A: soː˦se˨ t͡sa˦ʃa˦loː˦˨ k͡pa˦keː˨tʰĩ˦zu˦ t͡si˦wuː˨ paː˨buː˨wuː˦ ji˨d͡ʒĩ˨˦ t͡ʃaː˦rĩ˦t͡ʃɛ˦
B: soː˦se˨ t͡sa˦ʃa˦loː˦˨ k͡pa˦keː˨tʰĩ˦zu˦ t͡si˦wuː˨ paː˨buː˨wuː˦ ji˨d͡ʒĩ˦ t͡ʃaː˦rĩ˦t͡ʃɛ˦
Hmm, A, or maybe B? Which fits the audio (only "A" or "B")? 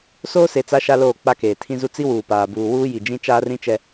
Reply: B